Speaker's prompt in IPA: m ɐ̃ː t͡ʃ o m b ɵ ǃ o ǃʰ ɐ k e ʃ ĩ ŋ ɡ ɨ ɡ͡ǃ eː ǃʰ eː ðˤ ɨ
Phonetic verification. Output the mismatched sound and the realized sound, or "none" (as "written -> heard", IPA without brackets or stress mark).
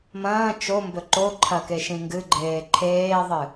none